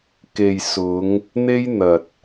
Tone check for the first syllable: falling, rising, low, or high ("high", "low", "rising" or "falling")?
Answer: low